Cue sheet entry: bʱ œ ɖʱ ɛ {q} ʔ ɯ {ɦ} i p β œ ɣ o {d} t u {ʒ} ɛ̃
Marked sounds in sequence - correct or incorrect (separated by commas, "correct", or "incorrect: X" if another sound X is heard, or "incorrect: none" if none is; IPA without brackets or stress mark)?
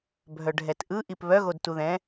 incorrect: t, incorrect: ʔ, correct, incorrect: ð